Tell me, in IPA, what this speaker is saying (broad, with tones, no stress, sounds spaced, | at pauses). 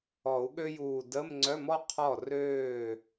ɔ˨˩˦ u̯ ɠ ø˥ j uː˧˩ d ə˧˥˧ m ŋ͡ǀ œ˧˥˧ m ɔ˥ qʰ ɔ˥˩ r øː˥˩